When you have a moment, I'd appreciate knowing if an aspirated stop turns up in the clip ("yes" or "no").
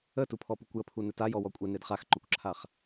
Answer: yes